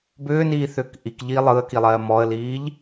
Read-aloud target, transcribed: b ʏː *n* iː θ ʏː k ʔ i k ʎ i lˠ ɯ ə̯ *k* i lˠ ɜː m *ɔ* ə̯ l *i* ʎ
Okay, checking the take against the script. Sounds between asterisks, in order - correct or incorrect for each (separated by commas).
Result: correct, correct, correct, incorrect